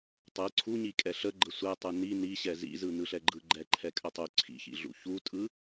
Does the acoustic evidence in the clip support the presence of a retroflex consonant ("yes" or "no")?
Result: no